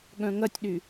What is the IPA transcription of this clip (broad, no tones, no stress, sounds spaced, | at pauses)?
ɠ œ̃ ŋ ɐ tʲ ɗ y